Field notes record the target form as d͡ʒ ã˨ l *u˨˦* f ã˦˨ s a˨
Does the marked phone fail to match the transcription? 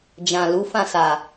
no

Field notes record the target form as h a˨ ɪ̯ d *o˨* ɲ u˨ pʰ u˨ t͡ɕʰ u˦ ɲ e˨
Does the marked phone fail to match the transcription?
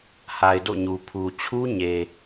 yes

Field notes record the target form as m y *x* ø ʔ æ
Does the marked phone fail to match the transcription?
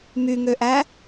yes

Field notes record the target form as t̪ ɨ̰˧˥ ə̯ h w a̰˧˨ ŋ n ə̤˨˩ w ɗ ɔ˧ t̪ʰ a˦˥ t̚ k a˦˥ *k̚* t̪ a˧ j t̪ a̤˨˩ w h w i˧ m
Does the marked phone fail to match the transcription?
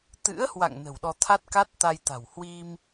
yes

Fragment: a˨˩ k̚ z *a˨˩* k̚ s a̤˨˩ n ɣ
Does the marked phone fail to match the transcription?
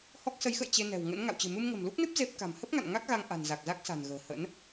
yes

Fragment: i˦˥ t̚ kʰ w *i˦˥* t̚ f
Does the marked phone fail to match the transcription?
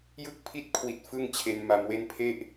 yes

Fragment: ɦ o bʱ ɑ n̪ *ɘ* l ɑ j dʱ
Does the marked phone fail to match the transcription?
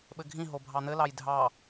no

